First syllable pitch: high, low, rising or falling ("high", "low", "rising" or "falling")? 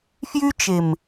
high